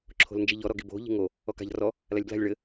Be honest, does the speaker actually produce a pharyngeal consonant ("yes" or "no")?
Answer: no